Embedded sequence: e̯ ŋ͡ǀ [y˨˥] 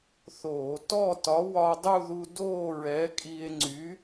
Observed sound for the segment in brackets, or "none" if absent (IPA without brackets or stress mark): y˨˥